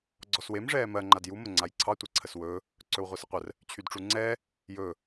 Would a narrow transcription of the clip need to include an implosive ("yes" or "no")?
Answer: no